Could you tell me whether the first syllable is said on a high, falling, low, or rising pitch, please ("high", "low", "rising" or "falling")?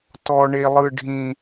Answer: high